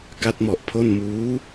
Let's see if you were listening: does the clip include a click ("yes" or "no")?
no